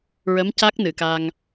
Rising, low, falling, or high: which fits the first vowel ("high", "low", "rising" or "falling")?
rising